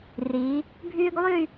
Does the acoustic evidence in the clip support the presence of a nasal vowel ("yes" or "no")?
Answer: no